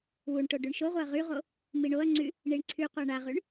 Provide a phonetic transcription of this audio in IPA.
wuɳʈo ɖyɳʃoʁʷeɐ̯ ʁyʁo | miɳoɐ̯ŋ͡ǀy | ɳiɳǀʰyqʷa ɳaʁyɳ

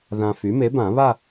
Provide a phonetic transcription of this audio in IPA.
ðã˧ fy˩˥me˩˥bã˨˩˦βa˥˧

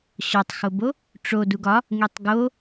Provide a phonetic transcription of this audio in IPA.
ɕɒtˤxobo | ʈ͡ʂo duɡɒ | ŋitˤɡo

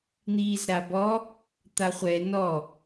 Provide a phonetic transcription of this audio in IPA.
n̪iːzɾabɔ | t̪aχʷɛ nɔ

